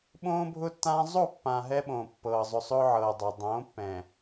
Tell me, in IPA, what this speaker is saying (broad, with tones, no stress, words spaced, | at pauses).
ɓõː˦bʱʊː˦tːãː˦ zˤo˦˨pːã˨ ɦɛ˦ɓõː˨pːɤː˨ zˤʊ˨ sˤʊː˦ ʕɤː˨dˤa˨ dˤõː˨˦pːɛ̃ː˨